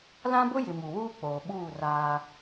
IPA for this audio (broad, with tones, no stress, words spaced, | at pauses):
lã˦bʊ˦jɪ˨ mu˨wuː˦k͡poː˨ɓuː˦˨ raː˦